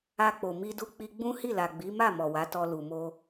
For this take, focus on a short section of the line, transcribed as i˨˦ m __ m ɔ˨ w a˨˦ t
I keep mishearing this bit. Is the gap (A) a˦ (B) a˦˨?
B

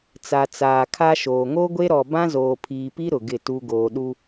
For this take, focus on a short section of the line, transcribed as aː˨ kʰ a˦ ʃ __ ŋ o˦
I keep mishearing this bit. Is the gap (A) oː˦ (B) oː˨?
B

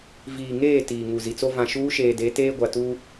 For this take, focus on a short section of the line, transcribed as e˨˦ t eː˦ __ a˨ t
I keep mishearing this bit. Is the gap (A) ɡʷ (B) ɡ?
A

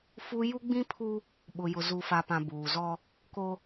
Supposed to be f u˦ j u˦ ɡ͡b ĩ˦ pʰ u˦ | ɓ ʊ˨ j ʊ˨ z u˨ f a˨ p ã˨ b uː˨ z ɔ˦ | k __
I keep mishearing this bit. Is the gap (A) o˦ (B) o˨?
A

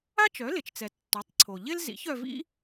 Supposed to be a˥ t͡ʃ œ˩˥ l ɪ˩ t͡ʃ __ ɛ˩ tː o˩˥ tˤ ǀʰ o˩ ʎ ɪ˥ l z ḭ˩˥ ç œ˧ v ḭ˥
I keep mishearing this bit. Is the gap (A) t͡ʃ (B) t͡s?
B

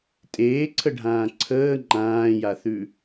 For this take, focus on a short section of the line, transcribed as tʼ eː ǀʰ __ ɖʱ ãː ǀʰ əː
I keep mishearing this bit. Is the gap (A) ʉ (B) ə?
B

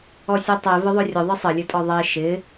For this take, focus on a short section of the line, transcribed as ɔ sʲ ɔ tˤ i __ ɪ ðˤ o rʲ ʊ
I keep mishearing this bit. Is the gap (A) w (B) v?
B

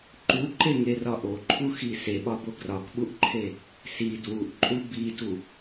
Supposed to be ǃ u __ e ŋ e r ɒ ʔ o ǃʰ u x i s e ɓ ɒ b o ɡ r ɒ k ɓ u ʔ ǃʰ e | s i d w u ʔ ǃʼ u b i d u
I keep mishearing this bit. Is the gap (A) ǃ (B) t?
A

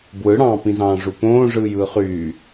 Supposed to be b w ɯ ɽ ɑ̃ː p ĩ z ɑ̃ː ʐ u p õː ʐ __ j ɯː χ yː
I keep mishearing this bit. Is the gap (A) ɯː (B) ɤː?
A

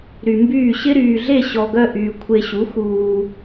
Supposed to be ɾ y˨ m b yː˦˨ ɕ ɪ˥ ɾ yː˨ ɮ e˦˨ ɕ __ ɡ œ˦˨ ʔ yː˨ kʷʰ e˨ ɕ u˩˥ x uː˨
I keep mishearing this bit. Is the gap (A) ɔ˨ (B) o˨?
A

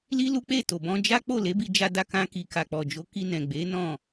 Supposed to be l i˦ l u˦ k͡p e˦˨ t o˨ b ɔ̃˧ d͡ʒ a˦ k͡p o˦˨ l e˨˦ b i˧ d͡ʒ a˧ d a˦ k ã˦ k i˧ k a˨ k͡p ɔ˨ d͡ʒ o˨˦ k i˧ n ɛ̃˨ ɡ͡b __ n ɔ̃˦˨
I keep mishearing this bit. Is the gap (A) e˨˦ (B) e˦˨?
A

